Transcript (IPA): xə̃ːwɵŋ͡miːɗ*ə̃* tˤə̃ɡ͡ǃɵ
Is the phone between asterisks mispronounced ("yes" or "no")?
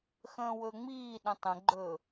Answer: no